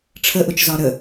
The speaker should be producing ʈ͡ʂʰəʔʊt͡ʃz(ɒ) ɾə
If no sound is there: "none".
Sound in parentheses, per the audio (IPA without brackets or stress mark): ɒ